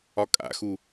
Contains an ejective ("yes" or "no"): yes